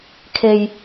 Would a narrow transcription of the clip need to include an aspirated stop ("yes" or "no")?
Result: yes